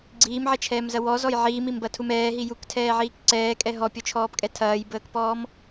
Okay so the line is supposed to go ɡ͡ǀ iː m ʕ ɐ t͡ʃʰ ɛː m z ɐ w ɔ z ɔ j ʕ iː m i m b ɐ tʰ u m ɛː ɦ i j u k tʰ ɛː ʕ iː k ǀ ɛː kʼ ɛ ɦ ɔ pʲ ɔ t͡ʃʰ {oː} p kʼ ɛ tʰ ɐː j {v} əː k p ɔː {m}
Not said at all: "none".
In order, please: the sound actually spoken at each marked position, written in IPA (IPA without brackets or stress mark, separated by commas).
ɔː, b, m